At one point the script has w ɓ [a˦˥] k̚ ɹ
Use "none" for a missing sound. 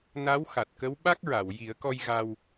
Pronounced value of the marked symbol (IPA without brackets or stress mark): a˦˥